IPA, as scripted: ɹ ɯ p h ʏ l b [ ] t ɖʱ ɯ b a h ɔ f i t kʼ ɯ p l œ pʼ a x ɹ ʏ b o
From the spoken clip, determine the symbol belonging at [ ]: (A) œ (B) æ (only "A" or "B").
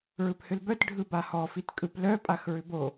A